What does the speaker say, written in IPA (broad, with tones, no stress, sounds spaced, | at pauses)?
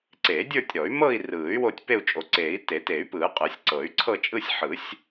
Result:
ǀ e˨˩˦ dʲ ə˞˥˧ tʲ ɾ ɔ˨˩˦ y̯ m ɤ˥˧ i̯ r ɯː˨˩˦ y̯ w o˥˧ tʲ p e˥˧ u̯ t͡ʃʼ o˨˩˦ ǀ eː˨˩˦ i̯ t e˨˩˦ t e˨˩˦ y̯ p ɯː˨˩˦ qʼ ɯ˨˩˦ sʲ ǀ ɤ˨˩˦ y̯ ǀʰ ɤ˥˧ t͡ʃʼ ɯ˥˧ sʲ ħ ɯ˨˩˦ sʲ